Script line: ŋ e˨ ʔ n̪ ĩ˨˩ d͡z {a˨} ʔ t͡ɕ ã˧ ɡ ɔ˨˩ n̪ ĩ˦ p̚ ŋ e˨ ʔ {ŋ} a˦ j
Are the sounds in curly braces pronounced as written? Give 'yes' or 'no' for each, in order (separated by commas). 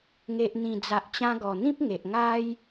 yes, yes